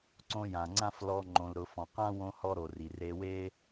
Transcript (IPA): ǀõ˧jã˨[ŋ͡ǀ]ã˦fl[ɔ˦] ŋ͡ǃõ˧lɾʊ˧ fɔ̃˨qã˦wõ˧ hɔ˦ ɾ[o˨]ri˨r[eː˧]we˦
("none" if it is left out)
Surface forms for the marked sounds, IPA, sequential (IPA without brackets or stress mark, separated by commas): ŋ͡ǀ, ɔ˧, o˨, e˧